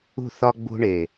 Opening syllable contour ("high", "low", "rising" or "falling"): falling